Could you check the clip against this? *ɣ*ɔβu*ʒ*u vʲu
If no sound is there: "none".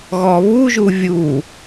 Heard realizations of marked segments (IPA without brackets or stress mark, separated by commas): ɣ, ʒ